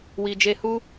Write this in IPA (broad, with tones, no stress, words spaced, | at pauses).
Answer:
wi˨d͡ʒe˧hu˦